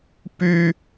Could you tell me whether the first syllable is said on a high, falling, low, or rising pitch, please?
high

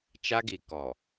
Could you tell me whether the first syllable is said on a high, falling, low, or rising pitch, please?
high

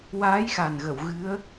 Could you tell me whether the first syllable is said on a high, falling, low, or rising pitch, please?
rising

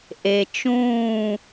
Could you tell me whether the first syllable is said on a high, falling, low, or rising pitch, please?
low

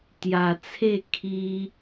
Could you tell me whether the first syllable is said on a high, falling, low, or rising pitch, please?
low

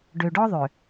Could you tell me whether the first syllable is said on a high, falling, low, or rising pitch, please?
low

